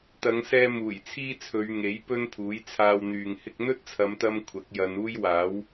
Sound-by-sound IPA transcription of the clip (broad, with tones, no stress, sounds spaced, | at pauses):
t̪ ɐ˨˧ ŋ s ɛː˧ m uː˨˩ j t͡sʰ iː˥ t͡sʰ ɵ˨˧ ɥ ŋ e˨˥ j p ɵ˥ n pʰ uː˨˥ j t͡sʰ aː˧ w n̪ yː˨ ŋ h ɪ˧ k̚ n̪ ɵ˥ t̚ t͡sʰ ɐ˨˧ m t̪ ɐ˧ m kʷʰ ɐ˨˥ k̚ j ɐ˨˧ n uː˥ j w aː˨˥ w